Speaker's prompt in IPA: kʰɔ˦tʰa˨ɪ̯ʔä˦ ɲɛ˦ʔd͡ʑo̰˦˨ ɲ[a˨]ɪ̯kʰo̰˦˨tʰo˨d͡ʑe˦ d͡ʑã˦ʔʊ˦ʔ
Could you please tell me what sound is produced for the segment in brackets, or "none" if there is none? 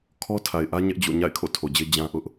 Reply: a̰˦˨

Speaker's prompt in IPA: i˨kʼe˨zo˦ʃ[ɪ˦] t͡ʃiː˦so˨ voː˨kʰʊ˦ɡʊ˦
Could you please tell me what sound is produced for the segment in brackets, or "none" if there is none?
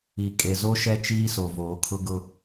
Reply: ɛ˦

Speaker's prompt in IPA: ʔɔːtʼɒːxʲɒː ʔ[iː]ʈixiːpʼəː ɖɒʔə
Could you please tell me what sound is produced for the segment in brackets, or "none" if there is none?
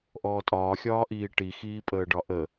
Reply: iː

